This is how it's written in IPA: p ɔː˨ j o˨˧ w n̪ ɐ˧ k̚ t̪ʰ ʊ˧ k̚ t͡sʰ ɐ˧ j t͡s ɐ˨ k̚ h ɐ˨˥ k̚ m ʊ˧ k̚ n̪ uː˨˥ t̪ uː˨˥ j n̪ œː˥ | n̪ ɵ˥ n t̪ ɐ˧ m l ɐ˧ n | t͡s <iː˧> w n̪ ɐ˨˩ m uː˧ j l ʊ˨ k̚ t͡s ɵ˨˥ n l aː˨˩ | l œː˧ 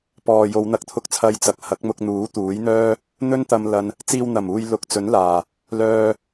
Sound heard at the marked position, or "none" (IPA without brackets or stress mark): iː˧